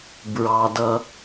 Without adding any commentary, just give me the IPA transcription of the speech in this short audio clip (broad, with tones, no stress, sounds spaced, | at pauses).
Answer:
b ɹ ɑ˩ d ʌ˩